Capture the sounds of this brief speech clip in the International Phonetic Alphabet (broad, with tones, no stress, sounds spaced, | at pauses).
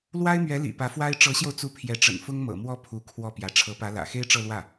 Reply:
l w a˥ ɪ̯ m ɥ ɛ˧˥ l ḭ˨˩ p ä˧˥ f w a˥ ɪ̯ ʈ͡ʂ ɤ˧˥ ɕ j o˧ ʊ̯ t͡s u˧˥ pʰ j ɛ˧˥ ʈ͡ʂ ə̰˨˩ n f ʊ˥ ŋ m ɤ̰˨˩ m w ɔ˥˩ pʰ u˧˥ kʰ w ɔ˥˩ p j ä˧˥ ʈ͡ʂʰ ɤ˧˥ p ä˧˥ l ä̰˨˩ x e˥ ɪ̯ ʈ͡ʂ ɤ˥˧ l w ä˥˩